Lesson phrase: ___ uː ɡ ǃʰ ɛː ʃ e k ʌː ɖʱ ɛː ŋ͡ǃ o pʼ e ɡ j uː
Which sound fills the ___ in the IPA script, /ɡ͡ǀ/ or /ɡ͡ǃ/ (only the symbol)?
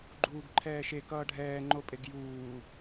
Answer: ɡ͡ǃ